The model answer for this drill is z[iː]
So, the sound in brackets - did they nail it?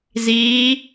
yes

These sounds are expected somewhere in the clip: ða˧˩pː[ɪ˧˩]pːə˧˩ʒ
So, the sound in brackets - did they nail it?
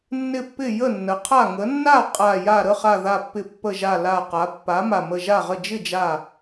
yes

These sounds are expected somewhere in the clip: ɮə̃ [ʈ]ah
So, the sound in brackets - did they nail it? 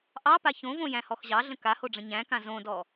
no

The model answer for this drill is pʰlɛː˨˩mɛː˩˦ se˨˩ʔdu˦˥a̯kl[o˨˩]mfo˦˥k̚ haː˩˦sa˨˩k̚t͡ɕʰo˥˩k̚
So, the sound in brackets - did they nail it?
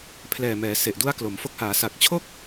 no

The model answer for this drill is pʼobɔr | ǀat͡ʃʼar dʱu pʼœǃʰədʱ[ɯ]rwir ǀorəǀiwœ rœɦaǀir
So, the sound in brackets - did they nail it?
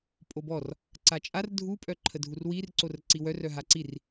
no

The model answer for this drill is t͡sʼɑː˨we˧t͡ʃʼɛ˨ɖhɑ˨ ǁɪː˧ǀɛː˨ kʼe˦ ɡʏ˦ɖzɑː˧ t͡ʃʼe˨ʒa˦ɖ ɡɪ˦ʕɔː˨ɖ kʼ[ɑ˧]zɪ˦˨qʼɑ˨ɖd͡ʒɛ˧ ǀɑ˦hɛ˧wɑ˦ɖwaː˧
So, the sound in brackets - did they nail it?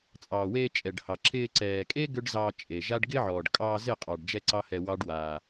no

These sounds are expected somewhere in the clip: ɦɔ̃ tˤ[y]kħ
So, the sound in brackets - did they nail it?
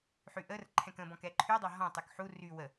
yes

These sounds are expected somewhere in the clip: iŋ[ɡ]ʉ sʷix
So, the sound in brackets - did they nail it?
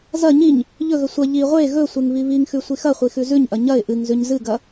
no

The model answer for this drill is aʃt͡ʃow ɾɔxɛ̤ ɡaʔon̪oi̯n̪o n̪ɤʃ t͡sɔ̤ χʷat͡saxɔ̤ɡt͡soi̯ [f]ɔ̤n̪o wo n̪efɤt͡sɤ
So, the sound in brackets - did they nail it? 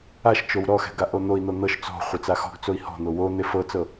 no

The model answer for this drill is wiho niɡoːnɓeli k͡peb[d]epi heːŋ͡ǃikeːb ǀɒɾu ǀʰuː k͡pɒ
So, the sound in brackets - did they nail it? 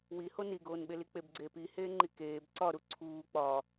no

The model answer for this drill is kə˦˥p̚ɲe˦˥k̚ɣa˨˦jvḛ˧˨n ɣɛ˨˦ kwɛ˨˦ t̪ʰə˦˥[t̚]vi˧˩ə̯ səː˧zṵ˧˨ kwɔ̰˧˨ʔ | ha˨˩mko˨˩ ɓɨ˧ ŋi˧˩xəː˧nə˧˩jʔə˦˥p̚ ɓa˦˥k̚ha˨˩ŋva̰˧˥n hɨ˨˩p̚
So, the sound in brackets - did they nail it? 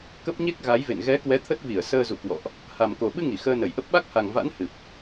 yes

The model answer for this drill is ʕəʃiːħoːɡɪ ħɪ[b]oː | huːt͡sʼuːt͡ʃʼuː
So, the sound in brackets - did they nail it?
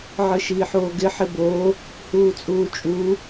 yes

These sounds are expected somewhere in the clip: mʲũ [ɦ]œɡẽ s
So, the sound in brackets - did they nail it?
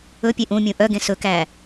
no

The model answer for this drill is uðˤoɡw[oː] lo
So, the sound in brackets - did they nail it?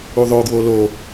no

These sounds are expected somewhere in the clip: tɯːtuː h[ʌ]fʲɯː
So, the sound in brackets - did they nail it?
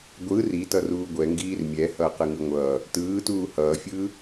no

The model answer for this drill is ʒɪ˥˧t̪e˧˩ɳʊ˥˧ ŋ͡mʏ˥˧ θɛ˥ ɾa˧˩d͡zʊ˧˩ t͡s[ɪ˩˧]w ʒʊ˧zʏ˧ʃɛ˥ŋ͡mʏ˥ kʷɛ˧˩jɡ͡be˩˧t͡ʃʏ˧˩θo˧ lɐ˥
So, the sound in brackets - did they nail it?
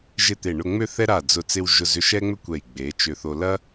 no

